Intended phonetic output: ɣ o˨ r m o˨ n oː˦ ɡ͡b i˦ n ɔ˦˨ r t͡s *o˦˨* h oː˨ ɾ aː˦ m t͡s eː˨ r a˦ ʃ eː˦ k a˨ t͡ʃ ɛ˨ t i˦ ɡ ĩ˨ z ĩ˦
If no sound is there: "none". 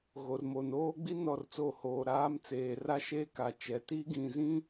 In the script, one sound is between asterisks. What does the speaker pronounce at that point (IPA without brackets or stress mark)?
o˦˨